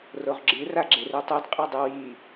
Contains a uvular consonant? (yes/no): yes